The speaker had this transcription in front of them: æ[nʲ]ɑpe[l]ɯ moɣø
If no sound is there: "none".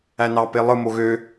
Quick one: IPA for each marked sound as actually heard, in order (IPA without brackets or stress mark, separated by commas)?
n, lˠ